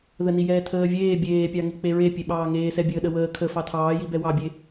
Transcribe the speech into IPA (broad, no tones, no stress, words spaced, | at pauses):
ðəni jɛːtʰəːvʲeː bʲeːpʲɑŋi k͡peɹe pʲeɓɑːŋeːsɛ bʲəːɗəwəː kʰə fɑtʰɑːji bɛwɑbʲe